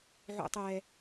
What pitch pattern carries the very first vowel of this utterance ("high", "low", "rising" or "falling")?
high